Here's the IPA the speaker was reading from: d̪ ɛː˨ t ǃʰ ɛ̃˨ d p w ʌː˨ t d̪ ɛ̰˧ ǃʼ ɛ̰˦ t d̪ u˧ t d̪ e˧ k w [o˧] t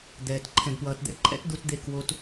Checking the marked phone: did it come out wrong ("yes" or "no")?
no